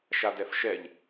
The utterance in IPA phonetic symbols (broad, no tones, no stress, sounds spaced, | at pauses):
ʃ a d ɛ f ʃ ɛ ʎ